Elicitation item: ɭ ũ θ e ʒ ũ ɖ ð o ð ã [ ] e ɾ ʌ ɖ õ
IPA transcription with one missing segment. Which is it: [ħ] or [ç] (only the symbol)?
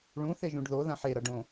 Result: ħ